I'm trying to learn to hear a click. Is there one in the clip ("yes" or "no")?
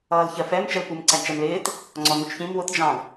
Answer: yes